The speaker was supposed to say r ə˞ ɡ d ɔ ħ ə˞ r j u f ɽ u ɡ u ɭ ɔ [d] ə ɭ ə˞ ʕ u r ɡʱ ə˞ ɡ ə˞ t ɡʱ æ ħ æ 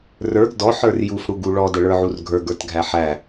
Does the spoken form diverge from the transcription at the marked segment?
no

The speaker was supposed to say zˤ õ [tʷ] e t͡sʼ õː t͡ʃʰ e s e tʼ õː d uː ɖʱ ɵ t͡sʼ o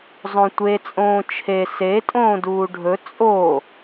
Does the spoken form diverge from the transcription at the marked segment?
no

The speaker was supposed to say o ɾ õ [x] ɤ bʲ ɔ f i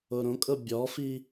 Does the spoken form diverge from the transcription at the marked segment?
yes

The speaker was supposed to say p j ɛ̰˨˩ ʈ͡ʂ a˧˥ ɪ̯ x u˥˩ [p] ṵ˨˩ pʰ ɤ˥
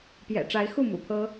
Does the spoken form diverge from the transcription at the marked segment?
yes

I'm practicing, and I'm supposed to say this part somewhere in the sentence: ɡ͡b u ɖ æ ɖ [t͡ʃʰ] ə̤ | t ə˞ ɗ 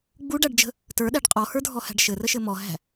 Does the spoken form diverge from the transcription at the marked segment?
yes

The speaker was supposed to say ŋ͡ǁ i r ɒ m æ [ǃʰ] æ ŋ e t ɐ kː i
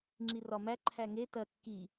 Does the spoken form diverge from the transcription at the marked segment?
no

